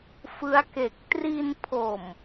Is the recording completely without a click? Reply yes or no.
yes